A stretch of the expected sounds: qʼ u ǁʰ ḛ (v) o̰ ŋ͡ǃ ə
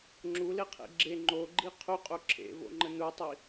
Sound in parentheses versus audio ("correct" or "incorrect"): correct